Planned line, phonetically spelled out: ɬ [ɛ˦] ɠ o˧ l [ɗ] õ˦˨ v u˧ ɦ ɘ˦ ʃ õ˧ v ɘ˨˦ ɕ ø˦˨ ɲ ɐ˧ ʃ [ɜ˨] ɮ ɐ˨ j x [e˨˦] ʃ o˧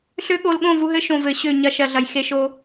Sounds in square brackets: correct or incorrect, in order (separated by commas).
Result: incorrect, incorrect, correct, incorrect